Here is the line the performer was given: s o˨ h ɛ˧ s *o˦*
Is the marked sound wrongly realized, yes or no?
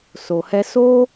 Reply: no